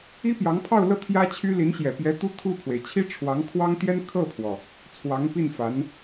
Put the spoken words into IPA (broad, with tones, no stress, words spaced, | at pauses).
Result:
i˥pjɑ˧˥ŋpʰɑ˥˧ʊ̯lɤ˥˩ t̪ʰjä˥t͡ɕʰy˥ li˧˥nɕjɛ˨˩pjɛ˧˥ t̪u˥ t̪ʰu˥˩pʰwe˩ɪ̯ t͡ɕʰi˥ʈ͡ʂʰwɑ˧˥ŋkʰwɑ˥ŋt̪jɛ˥n kʰɤ˥˩pʰwɔ˩ | t͡sʰwɑ˧˥ŋpi˥˩nfa˧˥n